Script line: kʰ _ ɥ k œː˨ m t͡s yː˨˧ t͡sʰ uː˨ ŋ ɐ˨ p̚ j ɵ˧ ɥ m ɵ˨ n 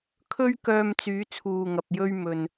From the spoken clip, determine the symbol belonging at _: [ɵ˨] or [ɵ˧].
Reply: ɵ˧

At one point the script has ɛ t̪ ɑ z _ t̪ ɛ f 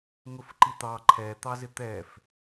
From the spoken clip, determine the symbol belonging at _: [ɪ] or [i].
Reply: ɪ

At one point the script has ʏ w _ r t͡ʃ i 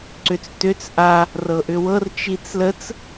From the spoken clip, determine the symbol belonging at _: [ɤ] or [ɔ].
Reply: ɤ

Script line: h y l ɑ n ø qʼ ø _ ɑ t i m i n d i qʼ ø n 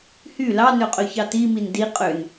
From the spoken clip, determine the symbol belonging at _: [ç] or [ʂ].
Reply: ç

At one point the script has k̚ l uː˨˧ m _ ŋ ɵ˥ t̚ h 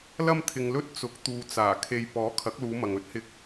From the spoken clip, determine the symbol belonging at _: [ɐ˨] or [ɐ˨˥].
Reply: ɐ˨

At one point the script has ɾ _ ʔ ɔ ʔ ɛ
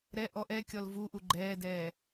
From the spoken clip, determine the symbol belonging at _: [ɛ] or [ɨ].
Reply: ɛ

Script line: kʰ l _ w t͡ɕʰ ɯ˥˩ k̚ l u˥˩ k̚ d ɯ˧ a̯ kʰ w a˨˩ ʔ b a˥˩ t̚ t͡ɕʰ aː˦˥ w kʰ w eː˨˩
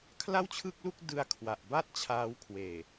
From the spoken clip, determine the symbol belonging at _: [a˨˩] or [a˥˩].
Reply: a˥˩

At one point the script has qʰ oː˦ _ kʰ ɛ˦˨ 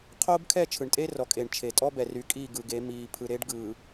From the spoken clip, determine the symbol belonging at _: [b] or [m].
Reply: b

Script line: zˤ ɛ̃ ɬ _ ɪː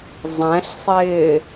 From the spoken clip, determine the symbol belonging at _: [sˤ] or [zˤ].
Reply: sˤ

